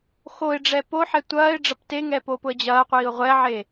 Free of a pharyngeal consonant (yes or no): no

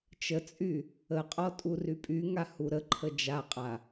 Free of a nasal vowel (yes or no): yes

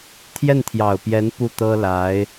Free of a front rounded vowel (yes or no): yes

